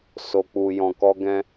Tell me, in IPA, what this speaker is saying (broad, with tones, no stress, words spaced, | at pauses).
so˧k͡pu˧ jɔ̃˧kɔ˦ɡɛ̃˦